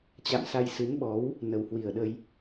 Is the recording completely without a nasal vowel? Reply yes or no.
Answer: yes